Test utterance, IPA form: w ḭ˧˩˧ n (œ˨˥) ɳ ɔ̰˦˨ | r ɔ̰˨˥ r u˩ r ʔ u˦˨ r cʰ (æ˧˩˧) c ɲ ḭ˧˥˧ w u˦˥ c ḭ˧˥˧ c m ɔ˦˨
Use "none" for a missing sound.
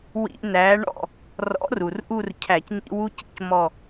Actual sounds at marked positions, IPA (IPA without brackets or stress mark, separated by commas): æ˨˥, æ˧˩˧